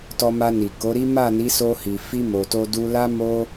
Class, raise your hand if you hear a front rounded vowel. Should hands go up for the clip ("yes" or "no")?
no